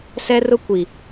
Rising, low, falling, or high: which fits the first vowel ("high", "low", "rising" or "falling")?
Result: high